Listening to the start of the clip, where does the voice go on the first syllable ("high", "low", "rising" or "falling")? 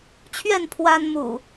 falling